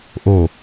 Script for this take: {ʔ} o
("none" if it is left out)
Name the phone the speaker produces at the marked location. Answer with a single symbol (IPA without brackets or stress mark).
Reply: ʔ